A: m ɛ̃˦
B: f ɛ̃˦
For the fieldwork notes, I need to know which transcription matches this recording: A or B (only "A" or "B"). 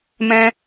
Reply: A